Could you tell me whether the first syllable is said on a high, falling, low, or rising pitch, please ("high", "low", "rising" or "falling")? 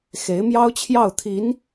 rising